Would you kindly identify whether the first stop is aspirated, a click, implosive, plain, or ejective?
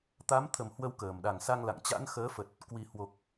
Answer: plain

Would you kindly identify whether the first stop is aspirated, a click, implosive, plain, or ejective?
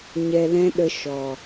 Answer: implosive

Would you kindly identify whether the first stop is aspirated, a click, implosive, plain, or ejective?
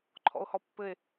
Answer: click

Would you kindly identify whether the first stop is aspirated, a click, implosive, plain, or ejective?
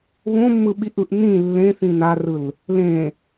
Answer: implosive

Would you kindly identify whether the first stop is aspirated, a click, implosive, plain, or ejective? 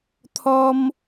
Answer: aspirated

